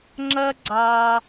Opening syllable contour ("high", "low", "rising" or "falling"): high